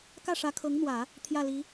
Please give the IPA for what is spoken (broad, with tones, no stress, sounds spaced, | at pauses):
k ä˥˩ ʂ ä˧˥ kʰ ɤ˧˥ ŋ n̪ w ä˨˩˦ | t̪ʰ j ä˥˩ l i˧˥